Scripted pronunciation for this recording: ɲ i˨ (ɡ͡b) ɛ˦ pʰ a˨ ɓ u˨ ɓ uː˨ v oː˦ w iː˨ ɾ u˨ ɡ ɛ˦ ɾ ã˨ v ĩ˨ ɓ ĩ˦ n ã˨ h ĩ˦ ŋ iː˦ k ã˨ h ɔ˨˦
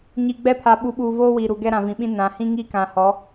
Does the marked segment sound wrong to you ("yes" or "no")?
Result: no